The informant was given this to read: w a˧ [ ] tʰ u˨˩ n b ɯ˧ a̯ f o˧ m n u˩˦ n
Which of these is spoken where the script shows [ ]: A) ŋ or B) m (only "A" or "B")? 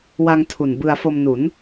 A